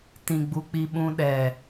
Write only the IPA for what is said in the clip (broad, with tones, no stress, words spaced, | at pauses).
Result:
tĩ˨ɡ͡bu˧k͡pi˧ ɓũ˧ɗɛ˨